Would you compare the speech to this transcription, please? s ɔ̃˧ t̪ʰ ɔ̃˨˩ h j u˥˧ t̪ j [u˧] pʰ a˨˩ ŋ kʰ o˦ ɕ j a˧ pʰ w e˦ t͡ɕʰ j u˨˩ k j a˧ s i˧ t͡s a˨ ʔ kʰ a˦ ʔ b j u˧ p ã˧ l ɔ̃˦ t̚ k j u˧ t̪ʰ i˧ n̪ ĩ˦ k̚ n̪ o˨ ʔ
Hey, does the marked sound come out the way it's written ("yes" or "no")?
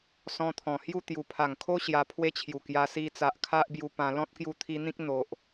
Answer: no